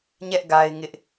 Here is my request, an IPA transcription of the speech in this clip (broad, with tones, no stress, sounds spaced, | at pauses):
ɲ ɛ˦ ʔ ɡ a˦ ɪ̯ ŋ ɪ˦ ʔ